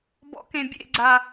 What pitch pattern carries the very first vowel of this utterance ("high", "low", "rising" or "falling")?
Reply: low